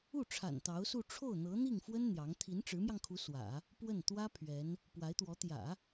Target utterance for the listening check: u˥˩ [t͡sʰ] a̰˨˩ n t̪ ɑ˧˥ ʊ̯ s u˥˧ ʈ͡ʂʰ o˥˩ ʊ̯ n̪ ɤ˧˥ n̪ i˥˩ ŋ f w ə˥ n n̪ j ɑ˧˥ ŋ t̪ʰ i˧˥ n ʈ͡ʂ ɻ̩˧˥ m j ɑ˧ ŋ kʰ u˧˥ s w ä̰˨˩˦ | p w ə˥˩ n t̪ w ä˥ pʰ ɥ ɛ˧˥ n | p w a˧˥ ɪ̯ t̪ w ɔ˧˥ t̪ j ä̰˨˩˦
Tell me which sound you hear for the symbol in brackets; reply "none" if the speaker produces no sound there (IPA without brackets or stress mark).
ʈ͡ʂʰ